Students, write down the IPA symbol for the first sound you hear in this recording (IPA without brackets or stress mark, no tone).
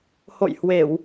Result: h